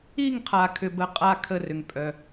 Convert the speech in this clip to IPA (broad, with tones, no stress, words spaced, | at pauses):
i˥˧ŋqʰa˧ kʰʏ˧ bə˥˧ qʼa˥˧kʰə˥˧rʏ˧ŋ pʼœ˧